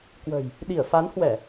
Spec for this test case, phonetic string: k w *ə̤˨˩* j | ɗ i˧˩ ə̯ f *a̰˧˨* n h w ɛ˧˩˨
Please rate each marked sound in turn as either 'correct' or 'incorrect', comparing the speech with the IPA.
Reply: correct, incorrect: a˨˦

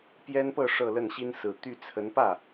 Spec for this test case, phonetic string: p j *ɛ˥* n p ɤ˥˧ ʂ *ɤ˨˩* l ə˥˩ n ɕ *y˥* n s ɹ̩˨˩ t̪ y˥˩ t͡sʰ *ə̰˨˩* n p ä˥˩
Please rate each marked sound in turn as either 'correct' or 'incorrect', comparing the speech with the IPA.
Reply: correct, incorrect: ɤ˥˧, incorrect: i˥, incorrect: ə˧˥

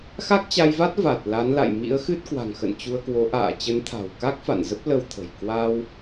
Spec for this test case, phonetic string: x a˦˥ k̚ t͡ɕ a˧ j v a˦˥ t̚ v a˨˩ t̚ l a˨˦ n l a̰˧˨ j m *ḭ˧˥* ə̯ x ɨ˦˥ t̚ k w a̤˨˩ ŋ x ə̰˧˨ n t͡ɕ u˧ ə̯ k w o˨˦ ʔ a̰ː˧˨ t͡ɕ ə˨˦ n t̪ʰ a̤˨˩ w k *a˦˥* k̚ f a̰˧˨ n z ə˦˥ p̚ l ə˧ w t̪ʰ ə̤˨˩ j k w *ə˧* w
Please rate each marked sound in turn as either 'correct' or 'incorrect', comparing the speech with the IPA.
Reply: correct, correct, incorrect: a˧

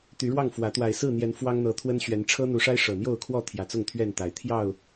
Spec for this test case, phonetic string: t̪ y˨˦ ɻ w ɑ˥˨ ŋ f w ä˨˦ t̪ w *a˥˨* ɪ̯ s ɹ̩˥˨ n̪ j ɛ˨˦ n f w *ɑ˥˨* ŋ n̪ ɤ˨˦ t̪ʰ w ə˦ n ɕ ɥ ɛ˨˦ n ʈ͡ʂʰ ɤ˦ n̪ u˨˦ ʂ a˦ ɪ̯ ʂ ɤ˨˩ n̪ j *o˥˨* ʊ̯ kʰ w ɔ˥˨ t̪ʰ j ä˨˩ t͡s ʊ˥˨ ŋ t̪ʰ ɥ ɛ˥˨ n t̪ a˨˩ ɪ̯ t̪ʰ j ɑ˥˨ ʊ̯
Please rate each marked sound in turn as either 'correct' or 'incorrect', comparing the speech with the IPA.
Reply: incorrect: a˨˩, incorrect: ɑ˦, correct

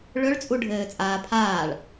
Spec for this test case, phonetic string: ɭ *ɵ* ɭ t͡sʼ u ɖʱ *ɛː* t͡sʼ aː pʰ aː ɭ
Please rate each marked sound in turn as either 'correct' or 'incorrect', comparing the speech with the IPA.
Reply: correct, incorrect: ɘː

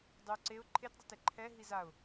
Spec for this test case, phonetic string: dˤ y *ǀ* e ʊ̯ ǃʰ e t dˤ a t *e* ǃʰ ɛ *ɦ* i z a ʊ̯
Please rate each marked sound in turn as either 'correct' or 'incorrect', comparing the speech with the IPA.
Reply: correct, correct, correct

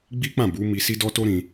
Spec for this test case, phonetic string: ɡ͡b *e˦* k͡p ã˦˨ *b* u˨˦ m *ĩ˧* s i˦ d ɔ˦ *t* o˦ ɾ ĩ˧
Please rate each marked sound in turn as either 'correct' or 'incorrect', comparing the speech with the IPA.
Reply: incorrect: i˦, correct, incorrect: i˧, correct

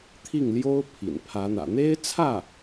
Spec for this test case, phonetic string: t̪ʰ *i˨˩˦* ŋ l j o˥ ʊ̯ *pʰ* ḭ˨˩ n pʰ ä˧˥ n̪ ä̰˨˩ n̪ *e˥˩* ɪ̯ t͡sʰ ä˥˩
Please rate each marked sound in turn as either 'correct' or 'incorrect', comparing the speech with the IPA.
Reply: incorrect: i˥˩, correct, incorrect: e˥

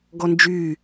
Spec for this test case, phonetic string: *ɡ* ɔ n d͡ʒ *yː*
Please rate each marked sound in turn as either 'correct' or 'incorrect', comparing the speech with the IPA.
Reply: correct, correct

